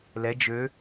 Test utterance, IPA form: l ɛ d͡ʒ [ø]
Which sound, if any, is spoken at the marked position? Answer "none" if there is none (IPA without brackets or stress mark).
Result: ø